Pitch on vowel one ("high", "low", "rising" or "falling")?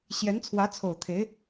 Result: rising